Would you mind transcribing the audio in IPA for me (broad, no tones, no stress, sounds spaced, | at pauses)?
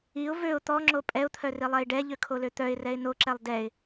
i ʊ̯ v ø ʊ̯ t̪ ɔ ŋ͡ǁ o pʼ ɛ ʊ̯ t̪ʰ œ r i lˠ ɛ ɪ̯ ɖ ɛ ʎ ø kʰ o l ø t̪ œ ɪ̯ r ɛ ɪ̯ n o ǁ ɛ lˠ d ɛ ɪ̯